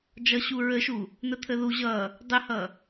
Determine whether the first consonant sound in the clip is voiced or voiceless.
voiced